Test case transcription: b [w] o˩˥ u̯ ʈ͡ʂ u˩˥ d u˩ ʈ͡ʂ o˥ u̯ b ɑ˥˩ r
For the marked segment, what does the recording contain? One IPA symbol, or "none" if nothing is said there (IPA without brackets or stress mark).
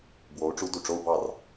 w